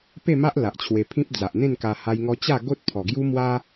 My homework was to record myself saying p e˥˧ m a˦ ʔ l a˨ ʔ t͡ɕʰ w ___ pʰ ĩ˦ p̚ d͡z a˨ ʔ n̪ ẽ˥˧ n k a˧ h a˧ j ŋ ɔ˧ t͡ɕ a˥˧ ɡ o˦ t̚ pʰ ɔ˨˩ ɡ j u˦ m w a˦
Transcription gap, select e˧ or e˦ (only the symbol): e˧